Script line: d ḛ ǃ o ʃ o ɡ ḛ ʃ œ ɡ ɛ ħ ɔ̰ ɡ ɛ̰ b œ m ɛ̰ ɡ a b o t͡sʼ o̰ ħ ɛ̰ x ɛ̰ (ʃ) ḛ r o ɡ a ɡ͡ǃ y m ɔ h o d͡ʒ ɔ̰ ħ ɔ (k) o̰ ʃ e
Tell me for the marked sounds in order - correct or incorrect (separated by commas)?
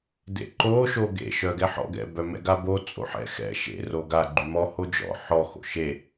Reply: correct, incorrect